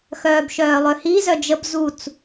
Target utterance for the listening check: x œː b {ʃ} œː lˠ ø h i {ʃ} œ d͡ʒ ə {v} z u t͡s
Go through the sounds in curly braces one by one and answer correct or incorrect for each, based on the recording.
correct, incorrect: z, incorrect: b

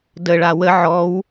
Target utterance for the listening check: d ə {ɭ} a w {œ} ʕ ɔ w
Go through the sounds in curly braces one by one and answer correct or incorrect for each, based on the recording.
correct, incorrect: ə

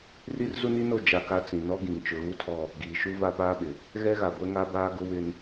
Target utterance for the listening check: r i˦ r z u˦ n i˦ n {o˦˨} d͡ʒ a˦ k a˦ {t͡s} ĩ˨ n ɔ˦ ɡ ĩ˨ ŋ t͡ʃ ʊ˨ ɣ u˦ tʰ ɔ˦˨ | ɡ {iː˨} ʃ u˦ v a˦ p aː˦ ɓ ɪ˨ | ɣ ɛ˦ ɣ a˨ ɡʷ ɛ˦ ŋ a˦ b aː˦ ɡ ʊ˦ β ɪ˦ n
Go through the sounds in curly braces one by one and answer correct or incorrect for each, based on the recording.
correct, correct, correct

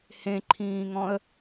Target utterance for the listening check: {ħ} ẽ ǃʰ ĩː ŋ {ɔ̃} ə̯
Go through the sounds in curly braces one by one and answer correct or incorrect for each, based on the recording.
incorrect: h, correct

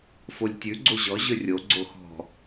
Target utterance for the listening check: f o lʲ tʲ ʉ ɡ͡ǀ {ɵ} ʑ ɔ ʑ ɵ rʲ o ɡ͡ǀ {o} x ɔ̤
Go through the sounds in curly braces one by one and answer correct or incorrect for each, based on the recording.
incorrect: o, correct

